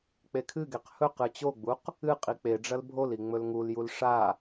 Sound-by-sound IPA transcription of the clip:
k͡p e kʰ ɨ ɡ e q h ɵ q ɨ t͡ɕ o ɡ͡b u q | ɨ qʼ i k͡p e ɖ͡ʐ ɐ l bʱ o l i ŋ͡m ɵ l ŋ u l j u l ʂ a

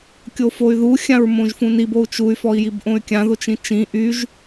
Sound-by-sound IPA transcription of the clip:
kʲ o f o y̯ ð u xʲ ã ɹ m õ ʒ f ũ n i b o u̯ t͡ʃ u y̯ f ɔ i̯ j i b ʔ õ y̯ kʲ ã ð o t͡ʃ ĩ t͡ʃ ĩ ʔ y ʒ

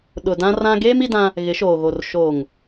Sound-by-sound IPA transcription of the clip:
ɗ ʊ˨ d ã˦ r ã˦ ɡ eː˦ m i˦ d ã˦ | ɣ ɪ˨˦ ʃ oː˨ ɣ o˨ r ʃ o˨ ŋ

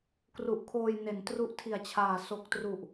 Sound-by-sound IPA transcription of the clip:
k r u˨˩ ʔ kʰ oː˧ j n e˩˦ n t r u˦˥ ʔ tʰ i˨˩ a̯ t͡ɕʰ aː˨˩ s o˨˩ k̚ t r u˨˩ ʔ

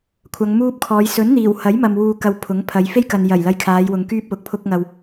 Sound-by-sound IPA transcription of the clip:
kʷʰ ɐ˨˧ ŋ m uː˥ p̚ kʰ ɔː˨˧ j s ɵ˨˥ n n̪ iː˨˩ w h ɐ˨˥ j m ɐ˨ m w uː˨ k ɐ˧ w pʰ ʊ˨˥ ŋ pʰ ɐ˨˧ j f e˥ j k ɐ˨ n j ɐ˨˩ j l ɐ˧ j kʰ aː˨˧ j w ʊ˨˧ ŋ k yː˥ p̚ w ʊ˨˥ k̚ pʰ ʊ˧ k̚ ŋ ɐ˨ w

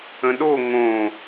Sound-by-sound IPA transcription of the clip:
ə̃ ɗ o ŋ õ

